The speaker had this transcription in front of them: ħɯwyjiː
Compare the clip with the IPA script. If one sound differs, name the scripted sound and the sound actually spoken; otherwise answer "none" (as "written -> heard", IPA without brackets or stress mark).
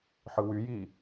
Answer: none